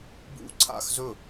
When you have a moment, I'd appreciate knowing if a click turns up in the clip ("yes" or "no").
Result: yes